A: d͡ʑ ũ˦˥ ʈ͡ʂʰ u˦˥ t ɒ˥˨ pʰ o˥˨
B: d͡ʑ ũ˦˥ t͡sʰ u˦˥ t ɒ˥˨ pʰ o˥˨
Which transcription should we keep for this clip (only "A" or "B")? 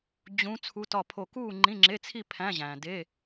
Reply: B